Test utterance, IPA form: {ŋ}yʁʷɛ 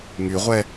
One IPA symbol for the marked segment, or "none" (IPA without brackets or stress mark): ŋ